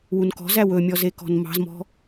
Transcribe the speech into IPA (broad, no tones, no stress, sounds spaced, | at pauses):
w u n k ɔ̤ z æ w ɵ mʲ ɔ z e k ɔ̤ n m ɑ̤ z m ɔ̤